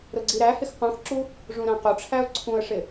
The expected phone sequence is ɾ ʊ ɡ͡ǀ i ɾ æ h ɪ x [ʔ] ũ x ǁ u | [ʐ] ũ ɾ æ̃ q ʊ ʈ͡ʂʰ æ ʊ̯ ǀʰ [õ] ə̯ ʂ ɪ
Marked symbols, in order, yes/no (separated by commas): no, yes, no